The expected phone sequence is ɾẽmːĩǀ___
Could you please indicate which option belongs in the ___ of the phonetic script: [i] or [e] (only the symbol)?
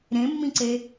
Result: e